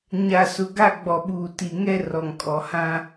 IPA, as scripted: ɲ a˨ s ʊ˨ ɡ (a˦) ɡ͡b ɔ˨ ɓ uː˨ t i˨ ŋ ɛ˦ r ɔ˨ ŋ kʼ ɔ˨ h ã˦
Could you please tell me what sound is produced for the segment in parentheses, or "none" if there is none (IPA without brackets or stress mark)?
a˦˨